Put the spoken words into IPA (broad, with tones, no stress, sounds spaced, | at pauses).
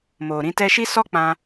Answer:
m o˨ ɾ ĩ˧ t ɛ˧ ʃ i˦ s ɔ˦ k͡p ã˧